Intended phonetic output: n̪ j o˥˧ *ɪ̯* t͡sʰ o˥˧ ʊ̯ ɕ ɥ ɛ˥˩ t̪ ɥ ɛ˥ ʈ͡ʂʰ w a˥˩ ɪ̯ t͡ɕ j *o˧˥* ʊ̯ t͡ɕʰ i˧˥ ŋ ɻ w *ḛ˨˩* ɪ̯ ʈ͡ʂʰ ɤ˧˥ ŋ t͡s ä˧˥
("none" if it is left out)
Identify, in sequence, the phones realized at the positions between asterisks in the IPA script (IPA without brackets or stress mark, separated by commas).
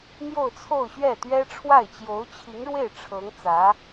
ʊ̯, o˧˥, e˥˩